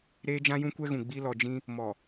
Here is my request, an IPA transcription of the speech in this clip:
ɾ eː˦ d͡ʒ ã˦ j ũ˦ kʷ ɛ˦ ɣ ũ˨ ɡ͡b i˦ l ɔ˨ d͡ʒ ĩ˦ | m ɔ˨

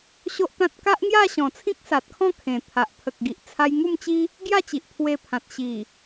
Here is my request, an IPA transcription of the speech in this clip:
ɕ o˦ ʔ t̪ ã˦ t̚ k a˦ ʔ ŋ j a˥˧ ɕ ɔ̃˨˩ t͡sʰ ĩ˦ k̚ s a˨ t̚ kʰ ɔ̃˥˧ kʰ ẽ˨˩ t̪ʰ a˨ ʔ pʰ ə˨ k̚ ɡ i˨ ʔ t͡sʰ a˧ j ŋ u˥˧ m t͡ɕ i˦ | ɡ j a˥˧ t͡ɕ i˨ ʔ pʰ w e˧ pʰ ã˨ t̚ ɕ i˨˩

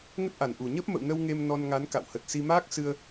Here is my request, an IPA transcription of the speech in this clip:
ŋ ə˦˥ t̚ ʔ a˨˩ n ʔ u˨˩ ɲ ə˦˥ p̚ m ə̰˧˨ w n ə˧ w ŋ e˧ m n ɔ˧ n ŋ a˨˦ n k a̰˧˨ w h ə˨˩ t̚ s i˧ m aː˦˥ k̚ s ɨ˧ ə̯

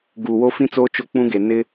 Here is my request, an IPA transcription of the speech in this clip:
ɡ uː˨ w o˦ f ĩ˦ t͡s oː˦ t͡ʃ o˦ k͡p ũ˦ ɡ e˨ n ɪ˦

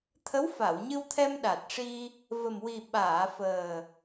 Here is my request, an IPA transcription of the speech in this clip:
t̪ʰ ə˧˥ w f a˨˩˨ w ɲ ɨ˧ w t̪ʰ ɛ˧ m ɗ a˨˩ t̚ ʂ i˧ | v ə˨˩ m w i˨˩ ɓ aː˨˩˨ f əː˨˩

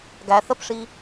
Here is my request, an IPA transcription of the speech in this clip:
ɡ æ θ ə p ʂ i

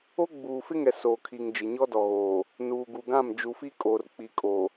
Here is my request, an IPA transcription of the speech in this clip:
o˦ ɡ͡b uː˨ f ɪ˦ ŋ ɛ˨ s oː˨ kʰ i˨ ŋ d͡ʒ ɪ˨ ɲ ɔ˦ d ɔ˨ ɣ oː˨ | n uː˨ ɡ u˨ ɡ ã˦˨ m d͡ʒ u˨ f i˦ kʼ oː˨ r k͡p i˨ kʼ o˨

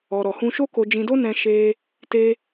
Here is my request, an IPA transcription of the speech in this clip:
ɔ˧ ɾ ɔ˨ h ũ˧ ʃ o˦ k o˧ d͡ʒ ĩ˧ d o˦ n ɛ̃˦ ʃ e˦ | t e˦

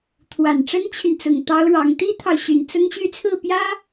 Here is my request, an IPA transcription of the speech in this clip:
t̪ʰ w a˨˩ n ʈ͡ʂ ə˥ n t͡ɕʰ y˨ n t͡s ʊ˨˩ ŋ t̪ ɑ˥ ʊ̯ ɻ ɑ˧˥ ŋ t̪ i˥ t̪ʰ ɑ˨ ʊ̯ ɕ y˨˩ n t͡s ʊ˥ ŋ ɕ y˥˧ t͡sʰ ɹ̩˥˩ p j ä˥

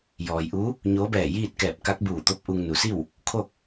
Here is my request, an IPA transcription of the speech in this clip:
j ɔː˩ j ʔ u˧˥ | ɲ oː˧˥ b ɛː˧˩ j iː˥˨ t̚ k ɛː˧˩ p̚ k a˧˥ k̚ b uː˧˩ t̪ o˧˥ p̚ ʔ u˧ ŋ n u˩˧ s i˥˨ w | kʰ o˥˨ k̚

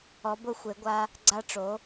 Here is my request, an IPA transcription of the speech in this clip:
ɔ˨˥ b ʊ˨˥ xʷ e˨˥ ɡʷ a˦˥ | ɡ͡ǀ a˦˥ ʈ͡ʂ o˨˥

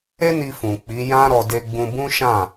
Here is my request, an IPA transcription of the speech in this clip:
e˦ n i˧ f ũ˨ k͡p i˨˦ j ã˦ ɾ ɔ˧ d e˧ ɡ͡b ũ˧ b ũ˦ ʃ ã˦˨

